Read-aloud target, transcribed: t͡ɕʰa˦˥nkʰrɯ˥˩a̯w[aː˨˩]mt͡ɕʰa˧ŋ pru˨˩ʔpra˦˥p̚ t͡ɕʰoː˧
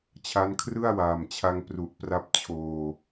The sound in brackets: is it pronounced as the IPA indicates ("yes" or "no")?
yes